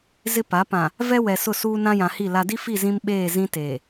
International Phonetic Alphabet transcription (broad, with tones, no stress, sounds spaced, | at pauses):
z ɪ˦ p a˨˦ p ã˨ | v ɛ˦ w ɛ˨ s ʊ˦˨ s uː˦ n ã˦ j ã˨ h i˦˨ l a˨ d i˦ f i˦˨ z ĩ˦ m ɓ eː˦˨ z ĩ˦ t eː˨